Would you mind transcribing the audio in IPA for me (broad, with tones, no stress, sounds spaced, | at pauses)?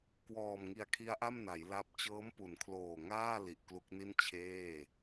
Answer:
k w ɔː˨˩ m ŋ i˨˩ a̯ kʰ i˦˥ a̯ ʔ a˥˩ m n a˩˦ j l a˦˥ p̚ t͡ɕ ɤː˦˥ m p u˩˦ n kʰ l oː˨˩ ŋ aː˥˩ l i˨˩ ʔ k l u˦˥ k̚ n i˥˩ n t͡ɕʰ eː˥˩